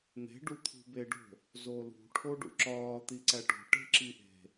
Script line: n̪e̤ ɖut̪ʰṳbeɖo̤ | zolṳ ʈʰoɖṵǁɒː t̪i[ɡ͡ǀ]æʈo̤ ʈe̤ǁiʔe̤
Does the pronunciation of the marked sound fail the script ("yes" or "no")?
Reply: yes